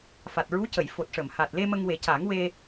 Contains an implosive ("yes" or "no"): no